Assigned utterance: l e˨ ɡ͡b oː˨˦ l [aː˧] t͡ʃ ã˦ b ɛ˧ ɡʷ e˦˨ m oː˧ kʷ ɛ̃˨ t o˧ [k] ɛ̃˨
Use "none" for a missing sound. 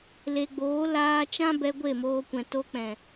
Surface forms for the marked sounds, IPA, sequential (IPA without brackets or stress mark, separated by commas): aː˧, k͡p